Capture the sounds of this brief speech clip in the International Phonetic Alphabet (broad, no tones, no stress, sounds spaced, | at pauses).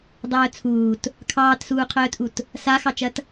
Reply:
dˤ œː t͡sʰ uː t | kʰ ɑː t s uː qʰ œː t ʔ u t | s a x ɑ t͡ʃ ɐ t